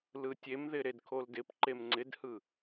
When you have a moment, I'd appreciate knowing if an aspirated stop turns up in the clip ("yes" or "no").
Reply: yes